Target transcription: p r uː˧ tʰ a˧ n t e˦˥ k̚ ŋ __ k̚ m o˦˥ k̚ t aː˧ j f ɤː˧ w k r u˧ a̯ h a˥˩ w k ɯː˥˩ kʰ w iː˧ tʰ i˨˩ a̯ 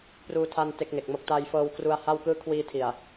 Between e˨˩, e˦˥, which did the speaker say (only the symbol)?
e˨˩